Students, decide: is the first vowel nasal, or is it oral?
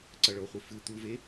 oral